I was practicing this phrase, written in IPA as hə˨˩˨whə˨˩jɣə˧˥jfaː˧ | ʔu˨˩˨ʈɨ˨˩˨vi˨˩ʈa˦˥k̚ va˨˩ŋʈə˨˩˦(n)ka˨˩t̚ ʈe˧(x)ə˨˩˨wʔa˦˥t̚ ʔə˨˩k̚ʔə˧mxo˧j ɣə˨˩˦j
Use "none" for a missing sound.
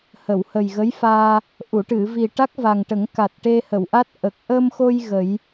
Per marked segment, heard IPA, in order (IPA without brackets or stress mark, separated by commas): ŋ, h